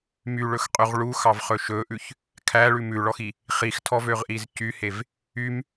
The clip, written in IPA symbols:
m y ɭ ɵ x qʼ y ʁ ɭ u x ɑ v χ ɵ ʃ ɵ ʔ ʉ ç | kʰ æ ɭ ʉ m ʉ ɭ ɔ x i | χ i x tʰ ɔ v ø ʁ ʔ i z c y h e v | y m

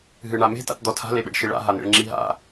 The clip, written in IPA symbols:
ɦ ɨ ɳ a m e̤ t a̰ t d̪ ɔ tʰ a̤ l e ɓ ḛ ɖ ʃ i ɭ a̰ ɦ a n̪ ḛ ɭ ŋ͡ǁ i ɦ a̰

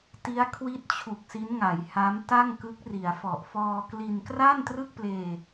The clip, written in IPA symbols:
t i˦˥ a̯ kʰ w i˥˩ t̚ t͡ɕʰ u˨˩ k̚ s i˦˥ n ŋ a˩˦ j h a˦˥ m t a˥˩ ŋ k ɯ˦˥ k̚ r i˩˦ a̯ f ɔ˨˩ ʔ f ɔː˧ k l i˧ n k r a˥˩ n t r ɯ˥˩ k̚ p l eː˧

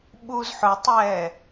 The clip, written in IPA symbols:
ɓ u z ħ ʊ tˤ ɛː

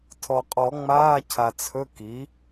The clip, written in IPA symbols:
tʰ ɔ˩ qʼ ɔ˨˩˦ ŋ͡m aː˧˥˧ cʰ a˩ t͡sʰ ɵ˧˥˧ k i˩˥

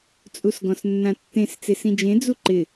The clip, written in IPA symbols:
t͡sʼ u s ɡ ɔ̃ s nː ã tː ẽ s t͡s e s ĩ d͡ʒ ẽ d͡z u ǃ ɪ

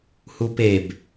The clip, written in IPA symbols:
h u p e b

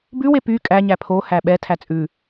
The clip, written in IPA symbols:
b ʉ w e p y kʼ æ ɲ æ pʰ o h æ ɓ ɛ tʰ æ t͡sʼ ʉ

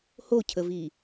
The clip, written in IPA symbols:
h o cʰ ə v i

